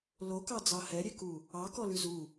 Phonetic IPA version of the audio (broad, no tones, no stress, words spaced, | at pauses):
lokɑd͡zɑ hɛɾʲeku | ɑkɔlʉ zu